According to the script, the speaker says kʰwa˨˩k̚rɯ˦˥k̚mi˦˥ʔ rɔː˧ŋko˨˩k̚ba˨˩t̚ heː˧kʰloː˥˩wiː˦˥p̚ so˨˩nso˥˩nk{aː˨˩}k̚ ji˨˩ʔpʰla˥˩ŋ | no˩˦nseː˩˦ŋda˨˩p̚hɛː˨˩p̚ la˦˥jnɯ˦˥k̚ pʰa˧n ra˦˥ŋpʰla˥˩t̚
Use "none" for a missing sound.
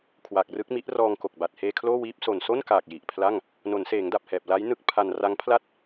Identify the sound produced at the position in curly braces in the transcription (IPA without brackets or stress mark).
aː˨˩